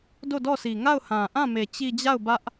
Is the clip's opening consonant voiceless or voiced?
voiced